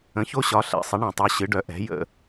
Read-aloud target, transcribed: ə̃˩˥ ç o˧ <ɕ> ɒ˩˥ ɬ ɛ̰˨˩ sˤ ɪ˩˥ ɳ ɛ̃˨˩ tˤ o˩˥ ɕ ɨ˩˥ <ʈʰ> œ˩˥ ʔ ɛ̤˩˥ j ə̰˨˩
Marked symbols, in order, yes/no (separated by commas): yes, no